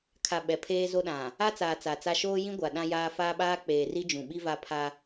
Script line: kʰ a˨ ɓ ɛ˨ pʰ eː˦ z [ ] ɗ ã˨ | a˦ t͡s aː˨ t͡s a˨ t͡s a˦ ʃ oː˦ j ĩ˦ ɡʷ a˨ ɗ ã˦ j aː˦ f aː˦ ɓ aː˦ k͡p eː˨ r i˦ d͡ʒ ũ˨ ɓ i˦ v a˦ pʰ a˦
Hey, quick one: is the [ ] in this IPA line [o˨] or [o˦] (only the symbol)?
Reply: o˦